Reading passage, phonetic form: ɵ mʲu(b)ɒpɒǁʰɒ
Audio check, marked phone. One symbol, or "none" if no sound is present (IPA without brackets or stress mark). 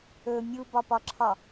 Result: b